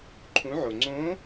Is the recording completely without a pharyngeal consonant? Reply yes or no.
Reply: no